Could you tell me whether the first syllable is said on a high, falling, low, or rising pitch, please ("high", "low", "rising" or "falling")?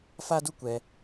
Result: high